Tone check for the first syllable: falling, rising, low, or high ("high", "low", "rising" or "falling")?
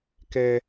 high